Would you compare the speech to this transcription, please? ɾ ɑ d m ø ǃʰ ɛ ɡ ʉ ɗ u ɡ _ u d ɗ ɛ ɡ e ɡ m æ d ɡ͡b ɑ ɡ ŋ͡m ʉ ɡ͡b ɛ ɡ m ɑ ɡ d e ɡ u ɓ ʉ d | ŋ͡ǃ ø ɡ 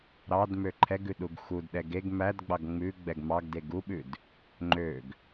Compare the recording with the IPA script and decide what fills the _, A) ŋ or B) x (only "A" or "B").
B